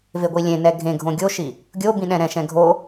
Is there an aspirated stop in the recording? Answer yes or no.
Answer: no